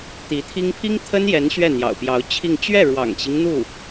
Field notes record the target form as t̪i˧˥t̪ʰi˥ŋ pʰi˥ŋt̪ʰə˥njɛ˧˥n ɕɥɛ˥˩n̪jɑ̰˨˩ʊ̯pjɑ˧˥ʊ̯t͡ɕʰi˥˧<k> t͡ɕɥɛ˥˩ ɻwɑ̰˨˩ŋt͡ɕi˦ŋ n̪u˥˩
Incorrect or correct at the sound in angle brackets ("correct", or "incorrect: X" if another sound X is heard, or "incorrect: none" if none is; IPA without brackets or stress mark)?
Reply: incorrect: ŋ